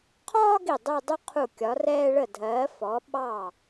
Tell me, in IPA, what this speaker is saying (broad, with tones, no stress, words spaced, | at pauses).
qʰɒː˥ɡi˧˩ dˤu˥˧dˤu˥ qʰu˧˩ kʲɒ˩˧rɛː˧ɭə˧˩dʱɜː˩˧ fɔ˩˧ɓɑ˧˩